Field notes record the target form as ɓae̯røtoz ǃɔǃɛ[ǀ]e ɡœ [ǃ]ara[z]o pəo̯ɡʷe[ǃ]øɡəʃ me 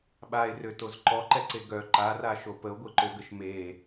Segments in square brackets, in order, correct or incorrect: correct, correct, incorrect, correct

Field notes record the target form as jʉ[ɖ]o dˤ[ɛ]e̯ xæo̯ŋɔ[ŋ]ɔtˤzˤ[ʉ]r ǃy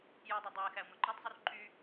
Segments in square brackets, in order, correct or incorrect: incorrect, incorrect, incorrect, incorrect

